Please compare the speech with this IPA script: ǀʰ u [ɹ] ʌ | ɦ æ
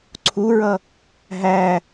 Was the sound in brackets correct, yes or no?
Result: yes